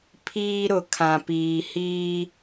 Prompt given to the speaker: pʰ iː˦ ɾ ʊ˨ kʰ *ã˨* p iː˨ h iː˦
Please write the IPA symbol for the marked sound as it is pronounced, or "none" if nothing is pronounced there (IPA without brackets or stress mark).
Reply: ã˨